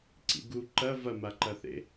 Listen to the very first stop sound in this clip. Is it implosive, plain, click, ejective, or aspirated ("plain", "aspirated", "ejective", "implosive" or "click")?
click